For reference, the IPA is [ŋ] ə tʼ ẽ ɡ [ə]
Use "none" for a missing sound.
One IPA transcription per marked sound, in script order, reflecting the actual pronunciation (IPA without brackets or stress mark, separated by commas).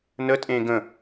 n, ə̃